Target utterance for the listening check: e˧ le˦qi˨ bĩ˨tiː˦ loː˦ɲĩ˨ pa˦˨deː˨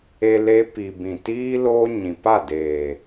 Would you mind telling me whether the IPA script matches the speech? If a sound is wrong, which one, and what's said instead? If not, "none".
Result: q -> p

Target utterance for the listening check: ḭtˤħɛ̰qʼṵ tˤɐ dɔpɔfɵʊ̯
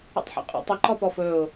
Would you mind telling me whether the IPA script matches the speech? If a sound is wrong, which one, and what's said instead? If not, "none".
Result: d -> ǃ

